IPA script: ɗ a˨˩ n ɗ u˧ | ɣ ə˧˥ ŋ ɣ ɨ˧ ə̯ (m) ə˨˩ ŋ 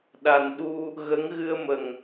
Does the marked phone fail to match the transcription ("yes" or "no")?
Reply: no